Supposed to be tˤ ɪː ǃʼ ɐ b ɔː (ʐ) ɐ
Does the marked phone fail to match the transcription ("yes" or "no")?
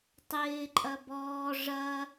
no